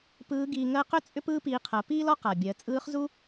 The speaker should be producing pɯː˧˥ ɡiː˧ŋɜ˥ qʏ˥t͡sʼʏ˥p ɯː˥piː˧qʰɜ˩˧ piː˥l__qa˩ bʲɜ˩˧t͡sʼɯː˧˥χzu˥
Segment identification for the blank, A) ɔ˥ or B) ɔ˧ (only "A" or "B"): A